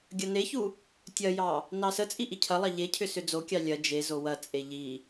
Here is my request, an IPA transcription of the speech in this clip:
ɡʲ ɐ n e ç u | tʲ ɐ j ɑ | n ɑ s ə t͡sʼ i ʔ i cʰ ɐ lˠ ɑ ʎ e cʰ ʏ s ʏ d͡z o kʲ ɑ lʲ ɐ d͡ʒ e z o w ɐ t͡sʼ e ʎ i

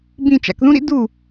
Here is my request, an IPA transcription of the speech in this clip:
b ĩ˦˨ t͡ʃ a̰˧ k ð ũ˦ ɾ ḭ˦ d u˦˨

